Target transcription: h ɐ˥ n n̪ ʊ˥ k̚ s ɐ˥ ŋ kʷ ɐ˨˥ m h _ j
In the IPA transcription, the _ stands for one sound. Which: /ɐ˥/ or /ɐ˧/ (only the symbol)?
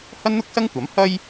ɐ˥